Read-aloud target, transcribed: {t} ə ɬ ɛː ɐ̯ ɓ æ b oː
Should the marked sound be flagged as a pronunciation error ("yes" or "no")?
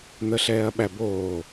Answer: yes